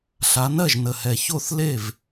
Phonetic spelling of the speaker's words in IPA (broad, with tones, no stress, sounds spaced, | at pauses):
ɬ a˨˦ n ɜ˥˩ ʒ n ə˨˩ h ɛ˨˩ ç o˥˩ θ l e˥˩ v